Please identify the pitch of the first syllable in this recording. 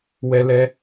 high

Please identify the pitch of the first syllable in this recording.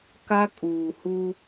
high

